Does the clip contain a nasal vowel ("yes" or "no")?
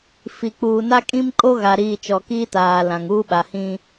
yes